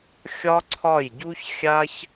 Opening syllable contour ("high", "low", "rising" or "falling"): high